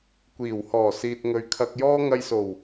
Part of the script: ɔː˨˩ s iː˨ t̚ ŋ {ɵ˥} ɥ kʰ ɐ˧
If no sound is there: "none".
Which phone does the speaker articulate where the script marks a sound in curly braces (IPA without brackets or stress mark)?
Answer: ɵ˨